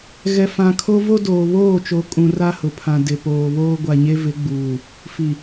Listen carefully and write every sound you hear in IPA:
ɣɛ˨ fã˨kʰo˦ vo˦ doː˨βoː˦˨t͡ʃo˨˦kʼũ˨ ra˦hʊ˨pʰã˨ dɪ˨poː˨βoː˦ ɡʷa˨ɲe˦vɪ˨˦ɡ͡buː˨ | fi˨

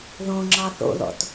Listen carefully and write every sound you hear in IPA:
ðõŋ͡ǁɑ θo̰ðɔ̰t

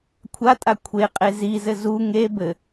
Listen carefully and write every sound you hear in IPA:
kʷʰatʼa kʷʰeqʼe zizɘ zu ŋe bɘ

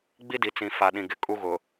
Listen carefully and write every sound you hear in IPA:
ɡ͡bi˦di˨ t͡sĩ˨ fa˨ɗĩ˨ɡɪ˨ kʼu˦ɣʊ˨

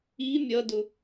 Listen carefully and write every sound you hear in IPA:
i mʲʌdʊ

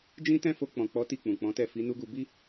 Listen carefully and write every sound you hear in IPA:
d͡ʒĩ˦tɛ̃˦fo˧ k͡pɔ̃˨k͡pɔ˨˦ ti˦˨k͡pũ˨k͡pɔ̃˨˦tɛ˦˨ fi˨˦nu˦ɡu˧ bi˦

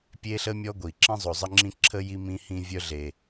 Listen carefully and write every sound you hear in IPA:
pʲe˥ɬə˥mʲɔ˥ ɡʷi˩ ǁĩ˦zˤo˨zˤə˦ŋ͡ǁĩ˦ ǁʰə˥ji˦mĩ˦ hĩ˦vʲœ˦ɮe˨

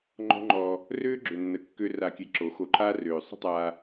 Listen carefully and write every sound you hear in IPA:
ŋ͡ǃɔ̤˦ŋ͡ǃɔː˧ | røː˦ɡ͡ǁø˨nːə˨ kːø˧ra˨kʲɛ˨ ǁo˨˦ xo˧ǃʰaː˦ røː˨ sˤə̤˦tˤaː˧

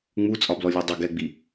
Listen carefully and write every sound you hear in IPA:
ŋ͡mut͡sʼɒblɔ lʲɛdˤɪ ɡɛɡ͡bi

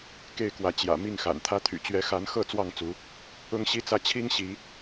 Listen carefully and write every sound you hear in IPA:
ke˥˨ɪ̯kwä˨˦ t͡ɕjä̰˨˩ mi˥˨ŋxa̰˨˩nt̪ʰä˦ t̪ʰy̰˨˩t͡ɕɥɛ˨˦xa˨˦nxɤ˥˨ t͡swɑ˥˨ŋt͡su˨˦ | ʊ˦ŋɕi˦t͡sä˥˨ t͡ɕʰi˦ŋɕi˨˦

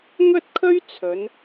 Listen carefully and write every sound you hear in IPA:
ŋɵ˥t̚kʰɵ˥ɥ t͡sʰɵ˨˧n

